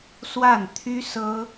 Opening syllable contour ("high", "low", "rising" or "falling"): falling